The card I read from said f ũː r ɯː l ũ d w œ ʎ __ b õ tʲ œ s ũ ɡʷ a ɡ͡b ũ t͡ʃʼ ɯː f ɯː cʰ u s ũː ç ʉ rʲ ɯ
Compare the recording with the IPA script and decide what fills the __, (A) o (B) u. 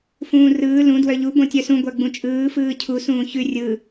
B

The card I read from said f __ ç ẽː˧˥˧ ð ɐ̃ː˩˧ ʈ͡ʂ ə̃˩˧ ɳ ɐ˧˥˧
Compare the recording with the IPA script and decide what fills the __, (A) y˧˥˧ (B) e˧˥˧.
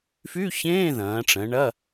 A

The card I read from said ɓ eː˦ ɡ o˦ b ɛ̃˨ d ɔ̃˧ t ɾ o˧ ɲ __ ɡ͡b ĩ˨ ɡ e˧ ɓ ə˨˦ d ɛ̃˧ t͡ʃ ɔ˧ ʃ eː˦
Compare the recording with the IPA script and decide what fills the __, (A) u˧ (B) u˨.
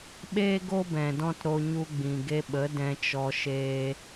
A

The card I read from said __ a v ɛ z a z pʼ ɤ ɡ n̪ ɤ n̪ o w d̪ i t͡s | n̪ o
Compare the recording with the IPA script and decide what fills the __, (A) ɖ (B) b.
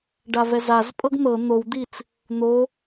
A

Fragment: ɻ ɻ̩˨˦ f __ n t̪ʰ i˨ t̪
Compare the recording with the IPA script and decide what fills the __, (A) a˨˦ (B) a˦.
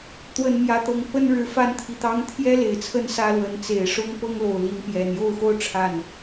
B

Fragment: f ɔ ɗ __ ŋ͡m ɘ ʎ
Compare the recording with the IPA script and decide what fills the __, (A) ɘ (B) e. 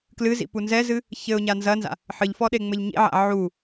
B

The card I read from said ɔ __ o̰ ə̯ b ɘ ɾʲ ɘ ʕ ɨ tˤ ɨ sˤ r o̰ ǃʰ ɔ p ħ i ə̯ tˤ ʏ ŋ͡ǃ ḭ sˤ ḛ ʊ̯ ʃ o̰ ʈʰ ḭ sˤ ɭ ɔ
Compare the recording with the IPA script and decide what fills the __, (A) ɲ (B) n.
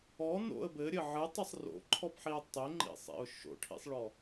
B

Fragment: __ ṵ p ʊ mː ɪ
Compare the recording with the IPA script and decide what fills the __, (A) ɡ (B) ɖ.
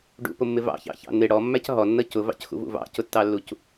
B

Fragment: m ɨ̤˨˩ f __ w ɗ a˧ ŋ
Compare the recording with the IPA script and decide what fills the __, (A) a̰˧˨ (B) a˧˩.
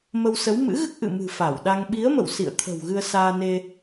B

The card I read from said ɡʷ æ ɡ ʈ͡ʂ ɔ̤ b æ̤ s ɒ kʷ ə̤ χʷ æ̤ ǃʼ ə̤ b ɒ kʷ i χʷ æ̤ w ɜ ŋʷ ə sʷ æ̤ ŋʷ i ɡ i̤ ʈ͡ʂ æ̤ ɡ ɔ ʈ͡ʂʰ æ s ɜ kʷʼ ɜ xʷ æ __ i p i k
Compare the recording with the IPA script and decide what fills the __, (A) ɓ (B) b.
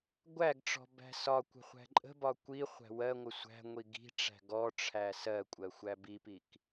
B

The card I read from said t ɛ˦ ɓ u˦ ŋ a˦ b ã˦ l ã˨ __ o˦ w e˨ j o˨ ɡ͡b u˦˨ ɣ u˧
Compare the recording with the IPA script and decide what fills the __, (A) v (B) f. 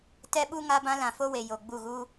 B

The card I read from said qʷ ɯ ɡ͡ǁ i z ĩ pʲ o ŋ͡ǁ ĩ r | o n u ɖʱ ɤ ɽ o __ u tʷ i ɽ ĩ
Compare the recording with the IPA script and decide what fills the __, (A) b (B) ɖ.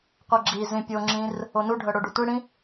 B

